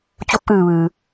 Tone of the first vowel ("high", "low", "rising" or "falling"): rising